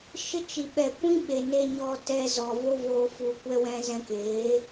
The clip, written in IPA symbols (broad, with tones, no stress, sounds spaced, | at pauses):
ʃ ə˦ t͡ʃ i˨ ɓ ɛ˨ kʷ ĩ˦ ɓ e˨ n e˧ ɲ ɔ˧ t ɛ˧ z ɔ˨ v o˦ v oː˧ f u˧ kʷ ɛ˦ w ɛ̃˦ z ɛ̃˧ k eː˨˦